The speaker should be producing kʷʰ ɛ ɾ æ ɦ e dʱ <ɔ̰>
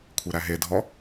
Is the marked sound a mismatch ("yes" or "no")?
yes